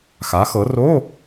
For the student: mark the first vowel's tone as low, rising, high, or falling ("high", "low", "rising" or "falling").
rising